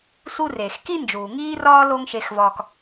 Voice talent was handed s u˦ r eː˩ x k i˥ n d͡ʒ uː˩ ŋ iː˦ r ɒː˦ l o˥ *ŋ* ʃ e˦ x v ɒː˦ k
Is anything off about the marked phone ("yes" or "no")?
no